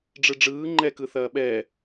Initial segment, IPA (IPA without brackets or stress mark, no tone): ɖ͡ʐ